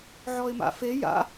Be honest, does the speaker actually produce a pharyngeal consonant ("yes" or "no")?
yes